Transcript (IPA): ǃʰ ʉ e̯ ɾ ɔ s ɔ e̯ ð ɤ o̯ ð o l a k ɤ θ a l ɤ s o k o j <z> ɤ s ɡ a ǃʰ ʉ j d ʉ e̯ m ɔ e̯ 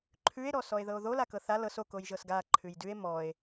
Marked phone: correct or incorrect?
incorrect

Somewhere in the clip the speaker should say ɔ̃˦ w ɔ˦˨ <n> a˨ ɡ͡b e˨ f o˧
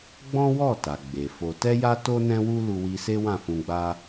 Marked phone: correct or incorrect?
incorrect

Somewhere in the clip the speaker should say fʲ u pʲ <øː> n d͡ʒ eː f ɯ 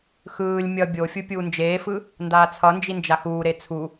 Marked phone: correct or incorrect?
incorrect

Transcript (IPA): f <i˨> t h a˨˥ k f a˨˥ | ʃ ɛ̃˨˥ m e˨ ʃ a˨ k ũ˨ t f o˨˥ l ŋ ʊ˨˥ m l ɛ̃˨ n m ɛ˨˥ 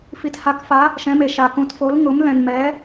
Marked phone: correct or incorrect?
correct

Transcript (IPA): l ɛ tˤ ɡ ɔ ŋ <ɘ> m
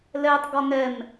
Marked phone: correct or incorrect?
incorrect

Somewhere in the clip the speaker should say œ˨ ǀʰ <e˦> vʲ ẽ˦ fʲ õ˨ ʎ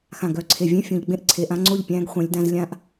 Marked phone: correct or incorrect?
incorrect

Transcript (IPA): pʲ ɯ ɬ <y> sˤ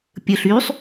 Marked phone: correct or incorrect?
correct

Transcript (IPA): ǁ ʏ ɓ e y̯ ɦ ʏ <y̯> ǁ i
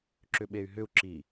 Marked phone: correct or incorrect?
incorrect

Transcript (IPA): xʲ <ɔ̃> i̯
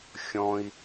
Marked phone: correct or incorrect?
correct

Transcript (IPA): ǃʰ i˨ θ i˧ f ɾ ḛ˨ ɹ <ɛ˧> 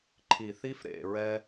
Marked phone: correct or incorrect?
correct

